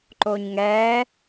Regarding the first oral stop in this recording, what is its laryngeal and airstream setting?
click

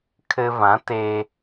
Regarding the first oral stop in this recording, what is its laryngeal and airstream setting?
aspirated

